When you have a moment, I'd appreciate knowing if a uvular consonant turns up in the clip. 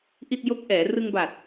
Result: no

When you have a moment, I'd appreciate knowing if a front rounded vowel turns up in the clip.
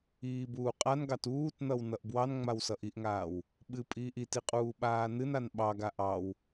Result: no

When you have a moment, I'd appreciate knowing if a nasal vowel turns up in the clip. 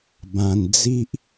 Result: yes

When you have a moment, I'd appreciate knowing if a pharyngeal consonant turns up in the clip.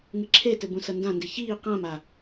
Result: no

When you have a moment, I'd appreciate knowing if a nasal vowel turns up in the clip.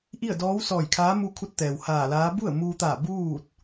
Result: no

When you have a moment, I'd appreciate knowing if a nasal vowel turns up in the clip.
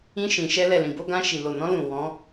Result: yes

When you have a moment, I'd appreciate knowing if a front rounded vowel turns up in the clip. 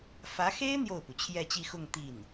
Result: no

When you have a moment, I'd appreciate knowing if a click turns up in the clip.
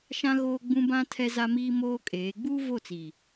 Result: no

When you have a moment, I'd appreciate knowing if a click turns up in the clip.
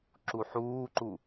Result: yes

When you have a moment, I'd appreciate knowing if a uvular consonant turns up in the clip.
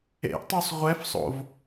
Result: yes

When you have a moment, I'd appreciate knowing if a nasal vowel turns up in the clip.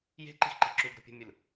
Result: no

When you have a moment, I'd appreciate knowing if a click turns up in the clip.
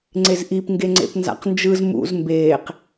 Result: yes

